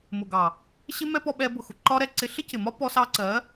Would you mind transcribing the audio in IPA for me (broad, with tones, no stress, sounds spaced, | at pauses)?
m ʊ˨ ɡ ɑ˨ | ɕ ɪ˦ m ɛ˦ p ɔ˧ ɓ ɛ˧ b ʊ˨ x ʊ˨ ǃ ɒ˦ ɾ ɛ˧ ǀ ɪ˧ ɬ ɪ˦ c ɪ˨ m ɒ˦ p ɔ˧ s ɑ˧ ǀ ɜ˨˦